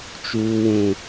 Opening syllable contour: high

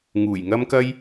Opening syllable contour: low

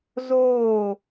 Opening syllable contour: falling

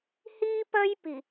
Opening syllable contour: high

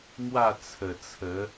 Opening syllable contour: falling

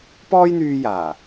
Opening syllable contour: high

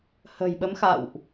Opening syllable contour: low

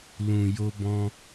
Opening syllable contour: low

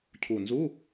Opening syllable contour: low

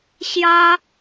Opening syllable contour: high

